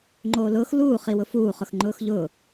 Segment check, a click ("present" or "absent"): present